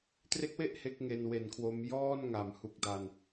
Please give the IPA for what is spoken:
tre˦˥k̚we˥˩ʔ he˦˥k̚ ŋe˧nwe˨˩n kʰwo˦˥m jɔː˥˩nŋa˩˦mhu˨˩k̚ da˧n

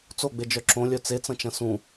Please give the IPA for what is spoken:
t͡soɡ͡bed͡ʒœ ǁõlʲœ t͡set͡sɐ̃t͡ʃɐ̃ sũ

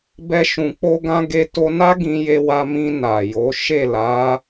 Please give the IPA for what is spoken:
bɛ˦ʃũ˧k͡po˦ɡã˦ ɡe˧to˧na˦ ɡĩ˧je˧wa˧mĩ˧ na˨jo˨˦ ʃe˦˨la˨˦

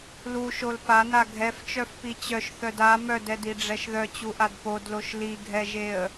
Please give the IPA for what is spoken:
luʃol pana ɡʱɛft͡ʃœfpi t͡ɕœʃθœd a mœdɛdiɖ͡ʐɛʃ ðœt͡ɕuʔad podloʃ liɡʱɛʒeə̯

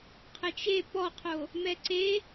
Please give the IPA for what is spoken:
qʰɘt͡ʃe pɔqʰo | mɛǀe

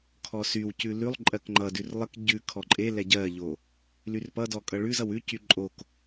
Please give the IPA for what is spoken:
kʰɔsywcʉ lʉlˠ ǃʼɜkŋ͡ǃʌdʉr lˠək ɟʉ kʰɔǃʼelɛ ɟɜʎo | lyrpʌdɔ kʼʌɭʉzʌw ʉcy ǃʼok

